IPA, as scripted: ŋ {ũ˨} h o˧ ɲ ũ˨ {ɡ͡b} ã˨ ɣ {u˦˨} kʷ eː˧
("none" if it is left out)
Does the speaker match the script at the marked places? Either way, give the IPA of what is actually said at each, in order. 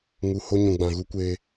u˨, ɡ͡b, u˧

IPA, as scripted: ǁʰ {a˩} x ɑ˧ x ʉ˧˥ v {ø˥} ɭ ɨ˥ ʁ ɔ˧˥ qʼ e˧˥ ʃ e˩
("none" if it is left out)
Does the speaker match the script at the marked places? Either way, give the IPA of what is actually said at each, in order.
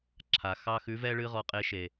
a˩, ɛ˥

